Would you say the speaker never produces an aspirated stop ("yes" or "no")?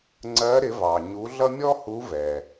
yes